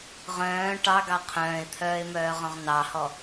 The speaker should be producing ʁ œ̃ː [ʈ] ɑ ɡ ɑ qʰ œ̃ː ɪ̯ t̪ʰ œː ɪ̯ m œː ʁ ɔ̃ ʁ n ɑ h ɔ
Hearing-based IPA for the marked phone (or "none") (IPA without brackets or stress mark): ʈ